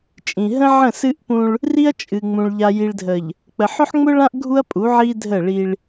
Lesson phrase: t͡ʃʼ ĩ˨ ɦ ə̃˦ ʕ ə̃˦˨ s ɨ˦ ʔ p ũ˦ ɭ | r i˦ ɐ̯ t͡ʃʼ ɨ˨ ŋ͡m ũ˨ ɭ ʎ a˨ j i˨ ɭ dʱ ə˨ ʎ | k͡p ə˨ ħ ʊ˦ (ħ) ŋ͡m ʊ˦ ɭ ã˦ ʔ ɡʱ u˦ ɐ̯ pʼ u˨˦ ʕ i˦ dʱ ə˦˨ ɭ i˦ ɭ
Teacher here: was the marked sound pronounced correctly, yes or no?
yes